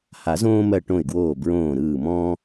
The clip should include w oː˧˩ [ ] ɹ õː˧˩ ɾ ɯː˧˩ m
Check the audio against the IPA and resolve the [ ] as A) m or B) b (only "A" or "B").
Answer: B